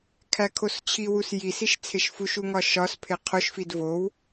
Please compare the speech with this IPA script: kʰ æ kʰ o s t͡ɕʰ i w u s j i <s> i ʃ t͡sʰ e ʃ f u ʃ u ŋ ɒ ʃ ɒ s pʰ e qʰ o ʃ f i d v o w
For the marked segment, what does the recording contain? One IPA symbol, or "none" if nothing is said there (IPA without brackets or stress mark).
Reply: s